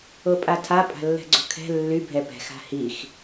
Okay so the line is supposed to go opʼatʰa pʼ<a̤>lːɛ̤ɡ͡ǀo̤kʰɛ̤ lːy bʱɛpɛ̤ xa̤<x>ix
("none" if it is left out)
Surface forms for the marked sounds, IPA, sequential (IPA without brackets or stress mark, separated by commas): a̤, h